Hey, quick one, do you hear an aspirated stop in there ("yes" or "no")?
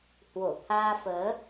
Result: yes